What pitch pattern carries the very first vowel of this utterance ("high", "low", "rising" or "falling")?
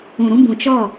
low